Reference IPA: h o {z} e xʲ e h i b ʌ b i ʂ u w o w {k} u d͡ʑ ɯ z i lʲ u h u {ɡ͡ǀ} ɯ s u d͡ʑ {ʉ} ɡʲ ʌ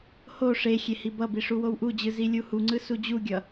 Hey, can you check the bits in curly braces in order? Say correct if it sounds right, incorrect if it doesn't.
incorrect: ʂ, incorrect: ʔ, incorrect: ŋ͡ǀ, incorrect: u

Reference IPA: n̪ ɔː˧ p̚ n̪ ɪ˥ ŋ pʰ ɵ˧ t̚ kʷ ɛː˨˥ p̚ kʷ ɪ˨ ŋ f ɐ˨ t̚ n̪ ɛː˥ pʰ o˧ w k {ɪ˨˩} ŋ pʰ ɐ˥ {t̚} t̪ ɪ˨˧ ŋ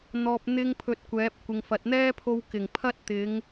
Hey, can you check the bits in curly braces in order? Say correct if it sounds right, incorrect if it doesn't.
correct, correct

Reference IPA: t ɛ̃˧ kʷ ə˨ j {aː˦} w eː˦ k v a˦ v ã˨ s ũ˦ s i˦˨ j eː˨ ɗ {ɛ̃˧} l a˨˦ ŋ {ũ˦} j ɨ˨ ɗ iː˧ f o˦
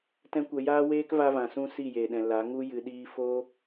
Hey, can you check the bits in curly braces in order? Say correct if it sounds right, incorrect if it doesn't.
correct, incorrect: ɛ̃˨, incorrect: u˦

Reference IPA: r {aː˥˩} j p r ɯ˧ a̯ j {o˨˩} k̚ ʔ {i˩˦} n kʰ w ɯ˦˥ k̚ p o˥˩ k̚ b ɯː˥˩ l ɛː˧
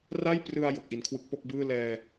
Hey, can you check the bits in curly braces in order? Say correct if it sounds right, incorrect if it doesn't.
incorrect: a˥˩, correct, correct

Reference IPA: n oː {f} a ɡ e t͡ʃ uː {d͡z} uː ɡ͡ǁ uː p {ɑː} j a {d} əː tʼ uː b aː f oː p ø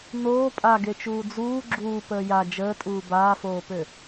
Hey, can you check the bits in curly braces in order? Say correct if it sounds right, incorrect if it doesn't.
incorrect: pʼ, correct, incorrect: əː, incorrect: d͡ʒ

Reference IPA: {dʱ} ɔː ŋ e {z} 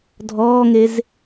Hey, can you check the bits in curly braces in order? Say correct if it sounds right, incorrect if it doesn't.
correct, correct

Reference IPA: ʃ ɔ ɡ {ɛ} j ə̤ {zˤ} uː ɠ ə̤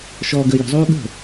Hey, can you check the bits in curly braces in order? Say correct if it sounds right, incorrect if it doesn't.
incorrect: ə, correct

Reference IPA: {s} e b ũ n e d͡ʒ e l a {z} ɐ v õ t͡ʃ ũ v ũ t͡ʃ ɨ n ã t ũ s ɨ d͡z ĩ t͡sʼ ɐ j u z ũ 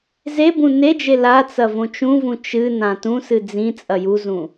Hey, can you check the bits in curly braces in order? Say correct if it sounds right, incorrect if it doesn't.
incorrect: z, incorrect: t͡s

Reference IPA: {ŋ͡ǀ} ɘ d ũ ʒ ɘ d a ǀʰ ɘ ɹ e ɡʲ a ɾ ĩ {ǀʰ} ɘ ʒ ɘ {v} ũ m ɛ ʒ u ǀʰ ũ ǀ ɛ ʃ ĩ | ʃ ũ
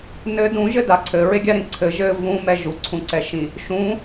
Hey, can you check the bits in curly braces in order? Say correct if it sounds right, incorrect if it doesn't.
incorrect: n, correct, correct

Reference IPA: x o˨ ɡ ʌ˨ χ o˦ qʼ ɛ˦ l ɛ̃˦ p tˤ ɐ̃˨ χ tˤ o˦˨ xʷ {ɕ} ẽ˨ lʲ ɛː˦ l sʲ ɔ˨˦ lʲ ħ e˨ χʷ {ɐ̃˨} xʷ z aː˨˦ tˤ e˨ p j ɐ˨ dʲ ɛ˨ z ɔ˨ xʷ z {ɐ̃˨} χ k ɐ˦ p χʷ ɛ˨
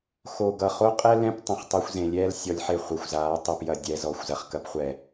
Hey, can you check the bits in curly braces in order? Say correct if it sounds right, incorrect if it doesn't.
incorrect: z, incorrect: ɐ˨, incorrect: ɐ˨

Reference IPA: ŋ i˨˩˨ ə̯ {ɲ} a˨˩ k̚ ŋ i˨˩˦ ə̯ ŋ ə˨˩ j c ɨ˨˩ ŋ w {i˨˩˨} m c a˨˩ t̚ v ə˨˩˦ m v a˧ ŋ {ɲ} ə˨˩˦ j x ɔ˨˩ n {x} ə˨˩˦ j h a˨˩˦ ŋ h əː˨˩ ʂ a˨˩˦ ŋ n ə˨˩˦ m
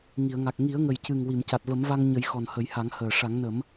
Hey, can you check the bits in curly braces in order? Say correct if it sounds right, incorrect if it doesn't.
incorrect: ŋ, correct, correct, incorrect: h

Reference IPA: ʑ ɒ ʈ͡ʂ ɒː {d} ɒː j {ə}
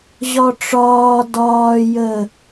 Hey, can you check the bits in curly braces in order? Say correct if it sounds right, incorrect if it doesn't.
correct, correct

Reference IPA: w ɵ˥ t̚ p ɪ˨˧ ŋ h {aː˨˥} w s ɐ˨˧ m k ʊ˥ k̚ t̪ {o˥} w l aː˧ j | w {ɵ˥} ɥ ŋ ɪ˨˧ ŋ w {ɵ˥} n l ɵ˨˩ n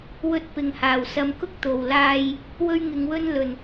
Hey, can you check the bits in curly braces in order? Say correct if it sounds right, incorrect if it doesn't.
incorrect: aː˨˩, incorrect: o˨˩, correct, correct

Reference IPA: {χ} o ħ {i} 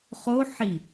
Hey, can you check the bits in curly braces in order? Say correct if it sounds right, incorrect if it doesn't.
correct, correct

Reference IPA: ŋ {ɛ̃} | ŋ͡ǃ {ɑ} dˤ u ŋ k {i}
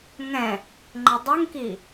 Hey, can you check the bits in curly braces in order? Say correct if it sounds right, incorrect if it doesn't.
correct, incorrect: ə, correct

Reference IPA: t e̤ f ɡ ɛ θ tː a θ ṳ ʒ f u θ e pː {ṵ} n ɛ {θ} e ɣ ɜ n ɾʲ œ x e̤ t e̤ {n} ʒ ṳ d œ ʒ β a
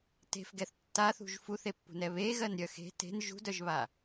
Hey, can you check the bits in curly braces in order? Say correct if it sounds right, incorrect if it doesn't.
incorrect: ṳ, incorrect: β, correct

